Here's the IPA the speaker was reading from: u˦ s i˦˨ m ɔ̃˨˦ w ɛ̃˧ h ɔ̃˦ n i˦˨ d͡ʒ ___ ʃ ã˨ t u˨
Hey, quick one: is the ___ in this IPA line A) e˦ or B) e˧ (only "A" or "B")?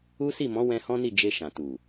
B